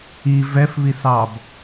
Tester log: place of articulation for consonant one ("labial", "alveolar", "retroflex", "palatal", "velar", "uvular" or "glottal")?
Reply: labial